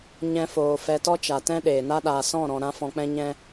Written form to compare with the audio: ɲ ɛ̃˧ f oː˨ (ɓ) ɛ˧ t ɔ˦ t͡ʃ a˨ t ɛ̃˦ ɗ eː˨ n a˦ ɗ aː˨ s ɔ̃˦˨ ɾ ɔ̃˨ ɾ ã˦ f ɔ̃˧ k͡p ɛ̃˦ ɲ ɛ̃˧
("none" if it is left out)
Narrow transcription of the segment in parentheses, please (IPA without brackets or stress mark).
f